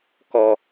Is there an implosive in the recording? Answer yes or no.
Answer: no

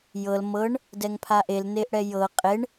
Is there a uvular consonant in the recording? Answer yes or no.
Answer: yes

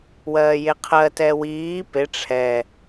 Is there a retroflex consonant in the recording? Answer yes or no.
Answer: yes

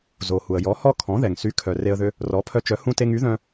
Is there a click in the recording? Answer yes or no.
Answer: no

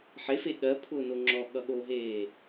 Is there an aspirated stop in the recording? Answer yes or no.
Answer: yes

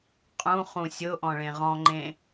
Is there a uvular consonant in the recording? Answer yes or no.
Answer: yes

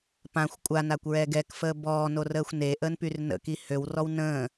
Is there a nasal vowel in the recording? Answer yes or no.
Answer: yes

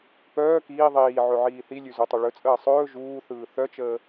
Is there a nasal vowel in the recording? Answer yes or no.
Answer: no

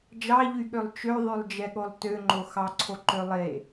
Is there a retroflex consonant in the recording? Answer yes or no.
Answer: no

